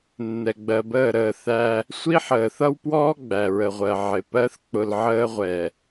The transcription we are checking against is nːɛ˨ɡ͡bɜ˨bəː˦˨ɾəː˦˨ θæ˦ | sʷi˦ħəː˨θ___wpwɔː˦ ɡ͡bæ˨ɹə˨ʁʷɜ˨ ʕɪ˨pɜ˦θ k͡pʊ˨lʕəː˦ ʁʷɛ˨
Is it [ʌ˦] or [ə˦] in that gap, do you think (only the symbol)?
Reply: ʌ˦